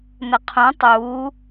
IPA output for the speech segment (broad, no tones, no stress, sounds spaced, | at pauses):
n ə qʰ ũ tˤ uː